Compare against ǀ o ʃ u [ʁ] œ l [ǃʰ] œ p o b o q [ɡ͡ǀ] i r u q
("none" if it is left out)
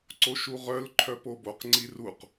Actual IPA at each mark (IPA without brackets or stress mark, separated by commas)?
ʁ, ǃʰ, ŋ͡ǀ